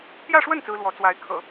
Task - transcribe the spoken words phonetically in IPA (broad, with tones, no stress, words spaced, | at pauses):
t̪jä˥˧ʂwə˥˩n t͡sɹ̩˥ lwɔ˧˥t͡swa˧˥ɪ̯kʰɤ̰˨˩˦